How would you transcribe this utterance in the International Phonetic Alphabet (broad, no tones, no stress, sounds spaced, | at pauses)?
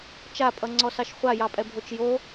t͡ʃ a pʼ ʌ ŋ͡ǀ ɔ s ɑ ʃ χʷ a j ɑ pʼ ɛ bʱ o t͡ʃ j o